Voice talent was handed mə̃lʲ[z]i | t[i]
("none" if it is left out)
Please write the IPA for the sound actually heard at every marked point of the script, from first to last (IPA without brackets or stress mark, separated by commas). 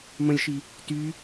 ʃ, y